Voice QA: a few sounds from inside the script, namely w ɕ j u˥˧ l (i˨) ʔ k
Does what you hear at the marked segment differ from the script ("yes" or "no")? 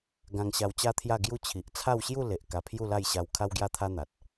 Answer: yes